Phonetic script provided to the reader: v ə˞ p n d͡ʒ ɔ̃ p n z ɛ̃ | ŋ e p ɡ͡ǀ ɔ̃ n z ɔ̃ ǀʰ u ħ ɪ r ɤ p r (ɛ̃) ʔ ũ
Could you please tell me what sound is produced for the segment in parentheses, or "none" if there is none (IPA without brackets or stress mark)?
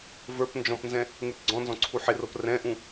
ɛ̃